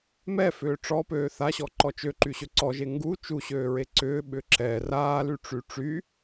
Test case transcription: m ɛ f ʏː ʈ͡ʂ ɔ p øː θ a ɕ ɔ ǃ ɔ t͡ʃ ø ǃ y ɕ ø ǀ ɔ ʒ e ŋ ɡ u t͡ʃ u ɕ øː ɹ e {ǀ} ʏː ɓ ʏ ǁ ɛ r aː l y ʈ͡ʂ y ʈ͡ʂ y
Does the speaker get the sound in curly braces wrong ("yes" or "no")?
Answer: no